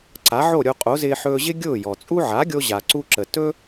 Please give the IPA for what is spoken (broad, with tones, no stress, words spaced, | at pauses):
ǀa˩˥ʕo˥˩ɾʲo˧ qʼo˩˥zɪː˧ ħɵː˧ʑɪ˥ ɡʲʊː˥˩jɔ˩t͡sʼu˥ ʕa˩˥ɡʲo˧ ʑa˩ǀu˧ǁə˩ tɵ˥